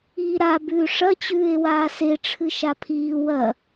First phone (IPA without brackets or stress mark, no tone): iː